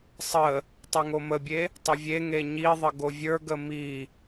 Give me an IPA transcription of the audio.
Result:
sˤ ə | tˤ ɛ ŋ o m ə bʲ e | tˤ ə vʲ e ŋ e ɲ i ðˤ ə ɡ o vʲ ə˞ ɡ ə m i

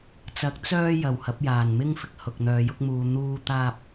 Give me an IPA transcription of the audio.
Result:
t͡s ɐ˨˥ k̚ t͡s œː˥ j ɐ˨ w h ɐ˨˥ p̚ j aː˨ n m ɪ˥ ŋ f ɪ˨ k̚ h ʊ˨ k̚ n̪ œː˨˧ j ʊ˥ k̚ m uː˧ n̪ uː˥ t̪ aː˥ p̚

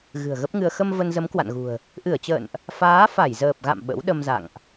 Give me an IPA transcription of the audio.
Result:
ɣ ɨ̤˨˩ ə̯ ɣ ə˦˥ p̚ ŋ ɨ˧ ə̯ x ə˧ m v ə˧ n z ə˨˦ m k w a̰˧˨ n ɣ ṳ˨˩ ə̯ | ʔ ɨ˧˩ ə̯ t͡ɕ ə̰ː˧˨ n ʔ | f aː˨˦ f a˧˩ j z əː˨˩ p̚ ɣ a̰˧˨ m ɓ ə̰˧˥ w ɗ ə˧ m z a̰˧˨ ŋ ʔ

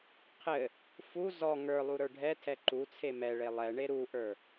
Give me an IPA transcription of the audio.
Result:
qʰ ɘ | f u z ɔ ŋ ə˞ lˠ u ɾ ə˞ ɖʱ ɛ tʰ ɛ ǃ u t͡sʰ e m ɛ ɭ e lˠ ɛ ɳ e ɾ u ʔ ə˞

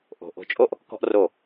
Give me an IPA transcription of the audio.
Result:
ʔ o̤˧ ʔ o̤˧ t͡ʃʼ o˦ ʔ | k ɔ̤˦ ʔ r o˦˨

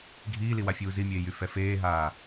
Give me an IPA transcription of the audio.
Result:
ɡʱ iː l i w a fʲ uː z i mʲ eː j y f ɛ f eː ɦ aː

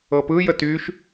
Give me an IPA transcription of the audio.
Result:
ɤ p ɯ j ə t y ʃ

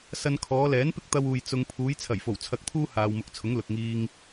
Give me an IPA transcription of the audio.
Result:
s ɐ˧ n kʰ ɔː˨˧ l ɛː˨˥ n p ɪ˥ k̚ t̪ ɐ˧ w uː˨ j t͡s ʊ˧ ŋ pʰ uː˨˧ j t͡sʰ ɐ˨˩ j f o˨˩ w t͡sʰ ɐ˧ k̚ t̪ʰ uː˥ h aː˨ w m ʊ˨˥ k̚ t͡sʰ ʊ˨˥ ŋ l ʊ˨ k̚ ŋ iː˧ ŋ

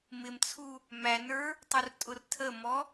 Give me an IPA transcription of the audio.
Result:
m ɪ m t͡sʰ u | m æ n ə˞ | tˤ u r tʼ ʊ r tʰ ə m ɔ

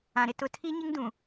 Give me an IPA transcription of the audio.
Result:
ã˨ ɾ ɪ˦ t ʊ˨ tʰ i˦ ɲ ɪ˦ ŋ d ũ˨

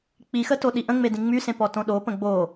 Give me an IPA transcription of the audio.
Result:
k͡p i x ə t o ɗ i ʔ ə̃ ŋ͡m e d ĩ ŋ͡m y s ẽ p ɔ t õ ɗ o p ə̃ ɡ͡b o

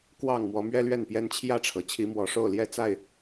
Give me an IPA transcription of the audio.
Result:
k w ɑ˥˨ ŋ m w ɔ˨˦ m ɥ ɛ˦ l ɥ ɛ˥˨ n p j ɛ˦ n t͡ɕʰ j ä˥˨ ʈ͡ʂʰ ɤ˩ t͡ɕʰ i˨˦ m w ɔ˨˩ ʂ o˥˨ ʊ̯ l j ɛ˥˨ t͡s a˥˨ ɪ̯

